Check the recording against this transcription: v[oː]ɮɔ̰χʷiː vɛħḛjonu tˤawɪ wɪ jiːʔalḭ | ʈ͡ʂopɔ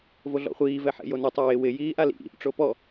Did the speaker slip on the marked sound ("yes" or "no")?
yes